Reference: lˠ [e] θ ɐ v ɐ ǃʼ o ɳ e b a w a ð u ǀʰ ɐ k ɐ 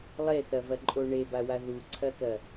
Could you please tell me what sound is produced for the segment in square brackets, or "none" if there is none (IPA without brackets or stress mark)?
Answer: e